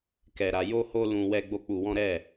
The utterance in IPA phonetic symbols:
k ɛ˧ ɾ a˧ j o˦ h o˦ l ũ˧ w ɛ˦ ɡ͡b o˦ k͡p u˧ w ɔ̃˦ ɾ ɛ˦˨

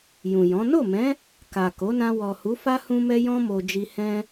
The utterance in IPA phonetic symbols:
j ũ˨ j ɔ̃˨˦ n o˦˨ m ɛ̃˨˦ | k a˨ k o˨˦ n ã˧ w ɔ˨ h u˨˦ f a˦ h ũ˦ m ɛ˦ j ɔ̃˦ m o˧ d͡ʒ i˧ h ɛ̃˦

